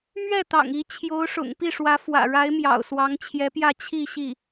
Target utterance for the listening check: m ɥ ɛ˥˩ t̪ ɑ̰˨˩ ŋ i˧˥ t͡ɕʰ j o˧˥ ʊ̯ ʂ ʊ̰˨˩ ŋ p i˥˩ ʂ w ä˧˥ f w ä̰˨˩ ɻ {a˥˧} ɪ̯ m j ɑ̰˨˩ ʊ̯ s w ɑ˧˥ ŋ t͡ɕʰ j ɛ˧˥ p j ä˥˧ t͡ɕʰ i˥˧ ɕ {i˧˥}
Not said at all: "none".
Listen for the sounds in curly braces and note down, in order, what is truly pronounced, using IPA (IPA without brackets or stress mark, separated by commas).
a˧˥, i˥˩